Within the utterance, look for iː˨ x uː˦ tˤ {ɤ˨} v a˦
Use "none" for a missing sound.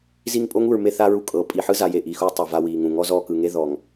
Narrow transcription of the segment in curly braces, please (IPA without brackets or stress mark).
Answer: ɤ˨